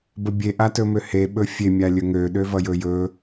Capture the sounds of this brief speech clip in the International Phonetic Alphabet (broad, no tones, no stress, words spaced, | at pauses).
bəbʲe ʔatɵmøhe ɓɵfʲe mʲalʲɵŋø ɗøvʌjɵjɵ